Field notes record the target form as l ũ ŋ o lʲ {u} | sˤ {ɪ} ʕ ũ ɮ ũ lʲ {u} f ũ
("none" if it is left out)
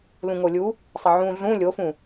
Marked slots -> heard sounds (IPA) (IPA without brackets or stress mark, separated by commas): u, ɪ, o